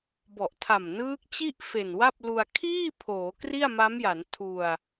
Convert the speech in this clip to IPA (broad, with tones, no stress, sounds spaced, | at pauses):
b ɔ˨˩ ʔ tʰ a˨˩ m n ɯː˦˥ k̚ t͡ɕ i˥˩ ʔ f e˨˩ n w a˥˩ p̚ l u˧ a̯ kʰ iː˥˩ pʰ oː˩˦ k r i˥˩ a̯ m a˦˥ m j a˩˦ n tʰ u˧ a̯